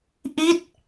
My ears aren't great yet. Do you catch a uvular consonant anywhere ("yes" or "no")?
no